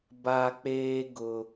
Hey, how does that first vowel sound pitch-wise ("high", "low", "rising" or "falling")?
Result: high